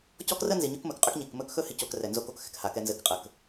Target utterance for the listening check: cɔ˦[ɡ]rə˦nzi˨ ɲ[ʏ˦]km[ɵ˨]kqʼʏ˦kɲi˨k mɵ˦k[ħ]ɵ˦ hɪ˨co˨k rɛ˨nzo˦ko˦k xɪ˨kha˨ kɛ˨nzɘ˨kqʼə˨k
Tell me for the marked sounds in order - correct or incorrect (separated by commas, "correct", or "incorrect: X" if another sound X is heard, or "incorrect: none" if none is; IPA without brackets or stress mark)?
incorrect: k, correct, correct, incorrect: x